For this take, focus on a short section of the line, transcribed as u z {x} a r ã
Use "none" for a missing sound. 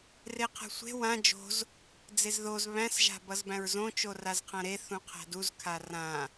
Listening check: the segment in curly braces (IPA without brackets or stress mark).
kʰ